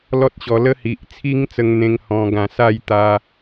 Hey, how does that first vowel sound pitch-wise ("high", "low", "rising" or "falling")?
high